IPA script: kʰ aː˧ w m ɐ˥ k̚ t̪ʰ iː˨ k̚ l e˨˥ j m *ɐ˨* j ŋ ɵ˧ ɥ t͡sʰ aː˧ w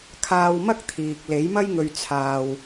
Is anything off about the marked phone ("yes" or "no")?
yes